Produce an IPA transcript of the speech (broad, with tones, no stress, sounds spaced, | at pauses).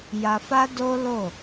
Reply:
j a˧ f a˦ d o˦ l o˦˨